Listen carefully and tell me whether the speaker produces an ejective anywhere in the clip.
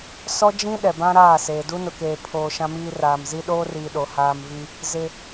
no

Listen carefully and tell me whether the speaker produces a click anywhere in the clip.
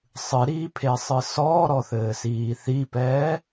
no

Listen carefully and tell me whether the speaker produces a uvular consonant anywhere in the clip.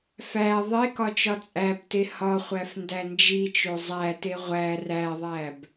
yes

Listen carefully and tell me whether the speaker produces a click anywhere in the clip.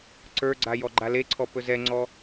yes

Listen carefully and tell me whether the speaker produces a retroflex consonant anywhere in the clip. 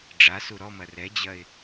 yes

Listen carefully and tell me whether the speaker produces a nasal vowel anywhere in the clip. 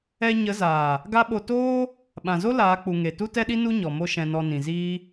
yes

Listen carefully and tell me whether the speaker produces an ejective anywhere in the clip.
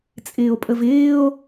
yes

